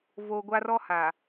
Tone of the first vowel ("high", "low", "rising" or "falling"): low